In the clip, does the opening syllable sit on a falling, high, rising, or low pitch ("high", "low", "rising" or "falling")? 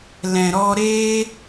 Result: low